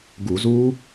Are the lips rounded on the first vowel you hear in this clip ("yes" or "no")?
yes